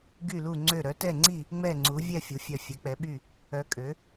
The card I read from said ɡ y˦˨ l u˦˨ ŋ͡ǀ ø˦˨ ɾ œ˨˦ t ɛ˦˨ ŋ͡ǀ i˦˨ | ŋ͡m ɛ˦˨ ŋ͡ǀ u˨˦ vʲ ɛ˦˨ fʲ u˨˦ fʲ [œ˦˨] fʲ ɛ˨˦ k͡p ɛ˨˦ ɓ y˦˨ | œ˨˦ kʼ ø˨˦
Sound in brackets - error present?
no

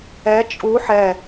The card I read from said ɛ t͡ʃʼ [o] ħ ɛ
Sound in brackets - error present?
yes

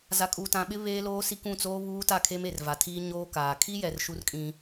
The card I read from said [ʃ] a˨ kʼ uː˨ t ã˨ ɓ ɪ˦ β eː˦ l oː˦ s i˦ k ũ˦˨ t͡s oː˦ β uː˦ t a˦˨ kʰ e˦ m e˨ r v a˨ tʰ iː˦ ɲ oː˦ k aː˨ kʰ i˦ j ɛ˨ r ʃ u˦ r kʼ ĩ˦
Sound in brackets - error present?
yes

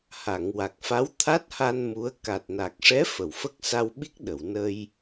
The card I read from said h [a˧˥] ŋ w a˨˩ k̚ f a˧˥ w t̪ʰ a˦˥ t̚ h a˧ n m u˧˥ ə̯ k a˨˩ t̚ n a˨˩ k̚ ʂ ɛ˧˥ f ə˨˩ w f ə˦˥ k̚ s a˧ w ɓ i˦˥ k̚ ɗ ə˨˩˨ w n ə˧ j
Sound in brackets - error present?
yes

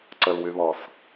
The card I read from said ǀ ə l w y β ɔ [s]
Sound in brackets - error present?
no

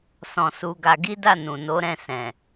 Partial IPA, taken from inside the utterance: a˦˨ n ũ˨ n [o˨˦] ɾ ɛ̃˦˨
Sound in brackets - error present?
no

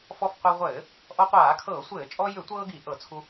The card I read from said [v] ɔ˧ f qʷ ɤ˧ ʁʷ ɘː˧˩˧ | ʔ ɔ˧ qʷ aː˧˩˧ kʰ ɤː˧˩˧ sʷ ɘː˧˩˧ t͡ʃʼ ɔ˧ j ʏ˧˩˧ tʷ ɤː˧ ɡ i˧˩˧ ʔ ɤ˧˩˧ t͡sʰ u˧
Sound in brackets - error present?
yes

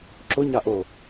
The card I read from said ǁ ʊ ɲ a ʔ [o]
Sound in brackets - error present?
no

